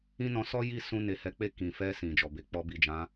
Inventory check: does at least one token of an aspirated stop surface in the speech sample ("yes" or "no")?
no